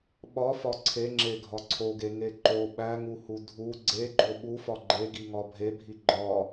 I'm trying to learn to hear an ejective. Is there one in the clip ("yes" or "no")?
no